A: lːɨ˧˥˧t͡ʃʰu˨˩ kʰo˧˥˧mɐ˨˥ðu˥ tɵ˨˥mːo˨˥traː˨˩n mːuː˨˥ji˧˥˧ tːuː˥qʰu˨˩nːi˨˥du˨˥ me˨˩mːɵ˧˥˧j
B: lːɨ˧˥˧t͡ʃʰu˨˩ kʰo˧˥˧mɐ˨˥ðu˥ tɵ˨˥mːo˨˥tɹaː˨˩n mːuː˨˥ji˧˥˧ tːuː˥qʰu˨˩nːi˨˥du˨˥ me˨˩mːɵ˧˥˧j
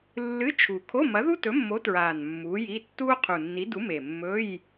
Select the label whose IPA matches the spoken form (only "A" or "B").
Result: B